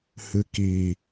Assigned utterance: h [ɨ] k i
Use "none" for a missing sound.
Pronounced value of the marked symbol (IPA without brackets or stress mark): ɨ